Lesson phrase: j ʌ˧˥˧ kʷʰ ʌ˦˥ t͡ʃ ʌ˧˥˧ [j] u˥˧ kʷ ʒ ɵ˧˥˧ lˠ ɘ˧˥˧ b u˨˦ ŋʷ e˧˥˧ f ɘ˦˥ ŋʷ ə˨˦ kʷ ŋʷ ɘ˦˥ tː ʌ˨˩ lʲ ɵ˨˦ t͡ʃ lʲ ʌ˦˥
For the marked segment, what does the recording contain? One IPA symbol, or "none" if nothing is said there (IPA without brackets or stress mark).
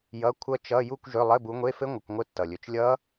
j